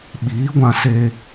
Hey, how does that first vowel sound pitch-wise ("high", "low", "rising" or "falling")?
rising